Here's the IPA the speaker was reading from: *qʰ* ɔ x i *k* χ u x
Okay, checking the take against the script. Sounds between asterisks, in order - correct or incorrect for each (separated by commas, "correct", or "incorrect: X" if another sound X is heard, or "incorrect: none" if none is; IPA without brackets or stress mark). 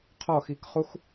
correct, correct